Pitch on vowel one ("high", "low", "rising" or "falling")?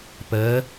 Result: rising